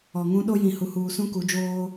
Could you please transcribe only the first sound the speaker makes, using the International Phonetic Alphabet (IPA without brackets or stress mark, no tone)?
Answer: ɔ